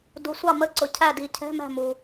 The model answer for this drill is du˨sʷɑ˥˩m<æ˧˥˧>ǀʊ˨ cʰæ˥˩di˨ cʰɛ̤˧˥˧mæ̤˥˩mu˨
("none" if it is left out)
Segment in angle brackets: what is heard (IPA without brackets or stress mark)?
ə˧˥˧